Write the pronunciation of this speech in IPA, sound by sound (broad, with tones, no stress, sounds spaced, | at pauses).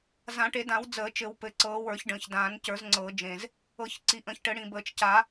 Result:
z ã˨˩˦ ʈ e˨˩˦ d ã˨˩˦ w d͡z əː˨˩˦ t͡ʃ ɘ˨˩˦ w p ɘ˨˩ ǀ ɤː˨˩˦ w ə˞˨˩˦ ç ɖ ə̃ː˨˩ ç d ãː˨˩˦ n c ə˞˨˩˦ z ŋ͡ǀ ɤː˨˩˦ d͡ʒ ẽ˨˩ z | ɤ˨˩˦ ç ǀ i˨˩˦ ʔ ə̃ː˨˩˦ ç ʈ ɘ˨˩˦ ɽ ĩ˨˩ b əː˨˩ t͡ʃ c a˨˩˦